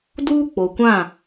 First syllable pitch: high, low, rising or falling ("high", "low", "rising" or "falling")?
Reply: high